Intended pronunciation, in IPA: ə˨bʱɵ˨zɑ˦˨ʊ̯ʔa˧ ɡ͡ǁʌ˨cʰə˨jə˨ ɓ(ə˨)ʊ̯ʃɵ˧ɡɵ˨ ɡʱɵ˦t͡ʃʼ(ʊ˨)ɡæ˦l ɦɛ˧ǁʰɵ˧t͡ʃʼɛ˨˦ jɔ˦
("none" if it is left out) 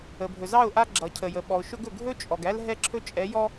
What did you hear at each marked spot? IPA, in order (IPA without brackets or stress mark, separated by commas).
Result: ɔ˨, ɔ˨